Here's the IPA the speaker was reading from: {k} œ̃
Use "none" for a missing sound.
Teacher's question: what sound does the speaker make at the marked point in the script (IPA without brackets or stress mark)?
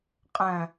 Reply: qʼ